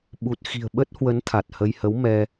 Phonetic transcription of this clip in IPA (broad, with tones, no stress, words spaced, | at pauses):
ɓu˨˩t̚xi̤˨˩ə̯ɓə˦˥t̚hwə˨˦n t̪ʰa˨˩t̚hə˧j hə˨˦w mɛ˧